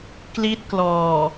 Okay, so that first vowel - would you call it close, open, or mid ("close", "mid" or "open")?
close